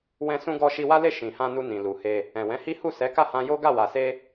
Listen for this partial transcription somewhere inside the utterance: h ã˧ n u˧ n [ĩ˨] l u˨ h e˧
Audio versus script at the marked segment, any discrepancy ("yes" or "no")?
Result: no